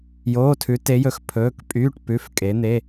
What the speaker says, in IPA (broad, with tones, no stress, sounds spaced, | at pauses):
j oː˩˧˩ tʰ ʉ˩˧ t e˩˧ j ɵ˩˧ x pʰ ɵː˩˧˩ k pʼ yː˩˧˩ ʈ p ʉ˩˧˩ f kʼ e˩˧ n̪ e˩˧˩